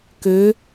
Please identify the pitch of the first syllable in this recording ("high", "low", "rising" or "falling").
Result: rising